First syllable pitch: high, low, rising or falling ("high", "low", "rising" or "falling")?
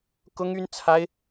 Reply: high